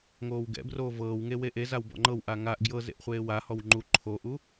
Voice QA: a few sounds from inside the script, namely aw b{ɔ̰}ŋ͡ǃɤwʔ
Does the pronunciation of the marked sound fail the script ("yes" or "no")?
no